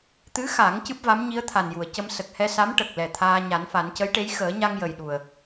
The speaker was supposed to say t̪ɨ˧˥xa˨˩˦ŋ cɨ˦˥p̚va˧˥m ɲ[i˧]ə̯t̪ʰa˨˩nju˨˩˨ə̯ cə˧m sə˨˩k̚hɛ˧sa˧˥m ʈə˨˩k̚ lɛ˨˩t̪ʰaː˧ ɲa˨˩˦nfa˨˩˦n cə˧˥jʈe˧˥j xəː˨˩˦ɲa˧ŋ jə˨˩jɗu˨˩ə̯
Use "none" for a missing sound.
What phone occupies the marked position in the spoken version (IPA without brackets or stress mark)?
i˧˥